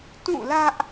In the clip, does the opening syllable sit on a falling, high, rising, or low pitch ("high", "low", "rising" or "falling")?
falling